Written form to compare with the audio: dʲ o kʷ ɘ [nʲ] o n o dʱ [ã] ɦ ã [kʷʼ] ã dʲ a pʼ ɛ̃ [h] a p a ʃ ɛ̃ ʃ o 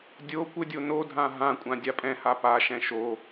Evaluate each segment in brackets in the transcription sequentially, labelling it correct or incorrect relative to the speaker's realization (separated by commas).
incorrect, correct, correct, correct